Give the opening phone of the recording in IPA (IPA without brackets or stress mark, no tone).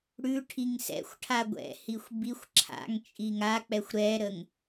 ɽ